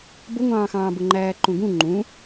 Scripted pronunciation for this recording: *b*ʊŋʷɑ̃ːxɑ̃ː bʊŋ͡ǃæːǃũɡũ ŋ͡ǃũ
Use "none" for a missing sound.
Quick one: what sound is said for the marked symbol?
b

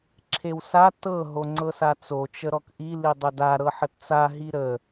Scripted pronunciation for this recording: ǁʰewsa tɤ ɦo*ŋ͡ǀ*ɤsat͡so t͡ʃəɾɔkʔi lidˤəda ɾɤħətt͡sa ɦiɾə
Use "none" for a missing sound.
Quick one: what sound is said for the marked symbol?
ŋ͡ǀ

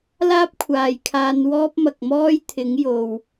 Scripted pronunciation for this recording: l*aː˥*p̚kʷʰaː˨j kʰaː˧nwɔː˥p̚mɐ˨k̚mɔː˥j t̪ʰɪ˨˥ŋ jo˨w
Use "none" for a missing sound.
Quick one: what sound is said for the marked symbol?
aː˥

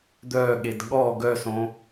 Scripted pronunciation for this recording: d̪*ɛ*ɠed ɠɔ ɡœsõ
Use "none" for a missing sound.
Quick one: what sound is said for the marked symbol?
œ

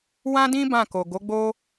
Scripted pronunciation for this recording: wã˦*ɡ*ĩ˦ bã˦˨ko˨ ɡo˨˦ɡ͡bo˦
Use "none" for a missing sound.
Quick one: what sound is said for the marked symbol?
d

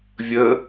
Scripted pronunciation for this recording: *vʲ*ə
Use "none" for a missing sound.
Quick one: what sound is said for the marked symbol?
vʲ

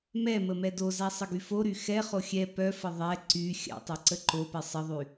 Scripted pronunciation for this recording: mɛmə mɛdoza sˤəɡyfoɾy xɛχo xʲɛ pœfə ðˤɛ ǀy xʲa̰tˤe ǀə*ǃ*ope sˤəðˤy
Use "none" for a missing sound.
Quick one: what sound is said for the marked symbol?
ǃ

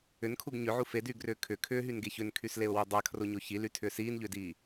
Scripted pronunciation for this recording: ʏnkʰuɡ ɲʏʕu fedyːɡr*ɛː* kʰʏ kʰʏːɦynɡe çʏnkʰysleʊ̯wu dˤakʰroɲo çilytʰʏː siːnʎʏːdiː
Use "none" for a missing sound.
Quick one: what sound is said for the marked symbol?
ʏː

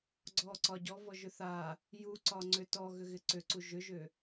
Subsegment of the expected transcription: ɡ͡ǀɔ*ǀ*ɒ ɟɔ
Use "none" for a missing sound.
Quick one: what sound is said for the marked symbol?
ǀ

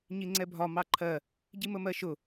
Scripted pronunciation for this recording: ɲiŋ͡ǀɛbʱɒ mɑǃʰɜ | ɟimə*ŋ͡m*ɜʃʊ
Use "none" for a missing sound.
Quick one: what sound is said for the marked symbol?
m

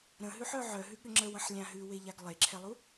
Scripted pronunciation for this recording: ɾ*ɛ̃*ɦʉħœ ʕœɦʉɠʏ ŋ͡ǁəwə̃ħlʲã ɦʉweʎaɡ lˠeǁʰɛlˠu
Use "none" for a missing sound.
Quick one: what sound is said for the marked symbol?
ə̃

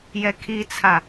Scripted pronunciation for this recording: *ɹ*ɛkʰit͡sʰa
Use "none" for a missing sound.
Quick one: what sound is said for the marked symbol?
j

